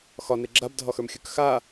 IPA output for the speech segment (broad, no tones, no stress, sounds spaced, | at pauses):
x ɒ n e ɡ͡ǁ a b dʱ ɒ x ə˞ m xʲ ə˞ k x a